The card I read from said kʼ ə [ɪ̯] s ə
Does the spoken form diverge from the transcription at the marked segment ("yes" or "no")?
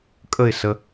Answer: no